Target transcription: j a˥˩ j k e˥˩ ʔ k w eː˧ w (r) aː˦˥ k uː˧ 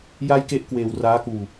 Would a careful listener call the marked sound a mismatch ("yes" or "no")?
no